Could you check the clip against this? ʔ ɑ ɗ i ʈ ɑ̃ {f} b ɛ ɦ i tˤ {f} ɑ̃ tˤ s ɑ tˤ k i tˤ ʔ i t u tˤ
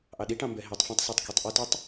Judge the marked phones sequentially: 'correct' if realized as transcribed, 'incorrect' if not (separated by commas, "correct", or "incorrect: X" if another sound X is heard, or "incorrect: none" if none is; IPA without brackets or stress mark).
incorrect: m, correct